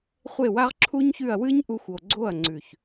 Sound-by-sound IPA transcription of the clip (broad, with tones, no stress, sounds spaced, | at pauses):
χʷ e˦˨ w a˦ ʁ ǁʰ u˦ ɲ ç ʉ˦˨ ɐ̯ w ɨ˦ ɲ ʔ u˧ xʷ o˨ ɡ͡ǀ o˦˨ ɐ̯ ŋ͡ǀ ʉ˨ ç